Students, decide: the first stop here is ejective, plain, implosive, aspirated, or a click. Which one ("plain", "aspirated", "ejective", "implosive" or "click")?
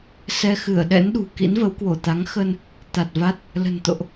implosive